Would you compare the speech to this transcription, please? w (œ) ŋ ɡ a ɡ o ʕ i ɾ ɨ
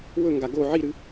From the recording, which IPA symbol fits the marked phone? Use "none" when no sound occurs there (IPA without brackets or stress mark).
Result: ɵ